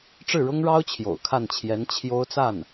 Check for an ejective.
absent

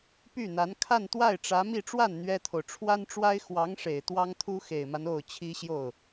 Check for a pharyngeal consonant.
absent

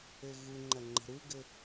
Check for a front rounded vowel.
absent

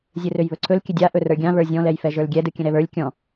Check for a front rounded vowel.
present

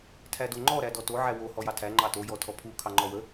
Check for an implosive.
absent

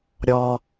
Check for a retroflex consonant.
absent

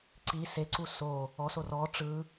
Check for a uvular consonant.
absent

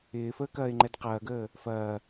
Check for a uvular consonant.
present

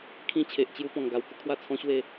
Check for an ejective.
absent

